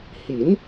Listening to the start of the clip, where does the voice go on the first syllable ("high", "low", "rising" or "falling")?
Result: rising